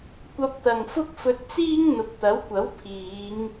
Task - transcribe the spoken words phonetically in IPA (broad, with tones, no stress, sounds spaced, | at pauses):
kʷ ɐ˧ p̚ t̪ ɐ˨ ŋ f ʊ˥ k̚ f ɵ˧ t̚ t͡s iː˥ ŋ n̪ ʊ˨ k̚ t̪ ɐ˨˥ w kʷ ɐ˨˥ w pʰ iː˨˧ ŋ